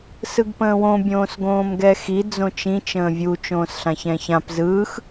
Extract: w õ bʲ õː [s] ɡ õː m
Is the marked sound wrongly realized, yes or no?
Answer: no